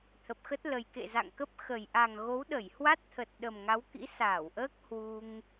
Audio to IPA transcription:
t̪ʰ ə˨˩ p̚ x ə˦˥ t̚ l ə˨˩ j k ḛ˧˨ z a̰˧˨ ŋ k ə˦˥ p̚ x ə˨˩ j ʔ a˨˩ ŋ ɣ o˨˦ w ɗ ə˧˩ j h w a˦˥ t̚ t̪ʰ ə˨˩ t̚ ɗ ə˨˩ m ŋ a˨˦ w k ḭ˧˥ s aː˧˩ w ʔ əː˦˥ k̚ h w u˧ ŋ

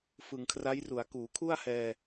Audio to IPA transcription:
f ɯ˨˩ ŋ kʰ r a˦˥ j r u˩˦ a̯ k uː˩˦ kʰ u˥˩ a̯ h ɛː˧

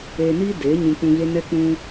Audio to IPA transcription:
eː˧ n iː˦ d eː˨˦ ɲ ũ˧ k͡p ũ˧ ɣ e˦ n ɛ˧ k͡p ũ˧

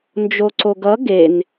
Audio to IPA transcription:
n d͡ʒ o ǀ o ɡ ʌ ɡ e n

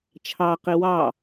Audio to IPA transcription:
t͡ʃʰ ɑ q i w ɑ

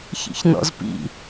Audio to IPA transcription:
ç ḭ ç n ɔ̰ z p ḭ

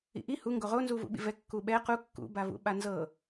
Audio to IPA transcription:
ḭ ʔ i h u ŋ ɡ o ʁ o n z u v ṵ ɓ ḭ v ɛ kː u ɓ ɛ q u kː ṵ b a v ṵ ɓ a n z ɤ

